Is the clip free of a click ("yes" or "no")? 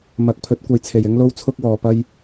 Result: yes